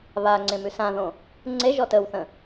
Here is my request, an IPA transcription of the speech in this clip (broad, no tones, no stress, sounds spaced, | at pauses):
β a ŋ͡ǀ ẽ m ʉ s ã ð õ | ŋ͡ǀ e ʒ ɔ t ə w θ ə̃